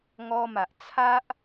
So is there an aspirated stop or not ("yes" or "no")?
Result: yes